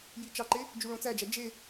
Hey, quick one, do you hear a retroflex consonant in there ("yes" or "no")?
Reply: yes